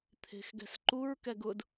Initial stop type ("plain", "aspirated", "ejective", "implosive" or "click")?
aspirated